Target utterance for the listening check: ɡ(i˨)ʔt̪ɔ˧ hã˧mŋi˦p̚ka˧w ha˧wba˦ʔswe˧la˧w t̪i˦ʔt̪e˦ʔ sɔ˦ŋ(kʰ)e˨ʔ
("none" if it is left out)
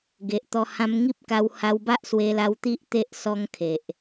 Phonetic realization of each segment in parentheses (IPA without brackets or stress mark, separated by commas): e˨, kʰ